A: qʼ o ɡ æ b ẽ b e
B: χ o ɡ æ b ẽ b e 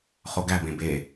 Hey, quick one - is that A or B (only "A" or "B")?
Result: B